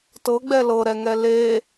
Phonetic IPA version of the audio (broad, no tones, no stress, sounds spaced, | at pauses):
t ɤ ɡ͡b ɛ l ɤ ɾ ɛ ŋ ɛ l e